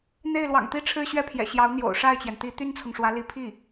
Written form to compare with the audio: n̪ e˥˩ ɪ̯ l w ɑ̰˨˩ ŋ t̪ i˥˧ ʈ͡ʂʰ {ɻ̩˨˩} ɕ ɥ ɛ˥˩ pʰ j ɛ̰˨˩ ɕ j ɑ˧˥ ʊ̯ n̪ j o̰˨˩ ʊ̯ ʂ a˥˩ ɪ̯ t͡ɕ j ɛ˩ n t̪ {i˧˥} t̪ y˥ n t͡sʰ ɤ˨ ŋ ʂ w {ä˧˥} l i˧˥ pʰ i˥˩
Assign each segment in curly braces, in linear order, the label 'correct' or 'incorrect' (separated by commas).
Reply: incorrect, correct, correct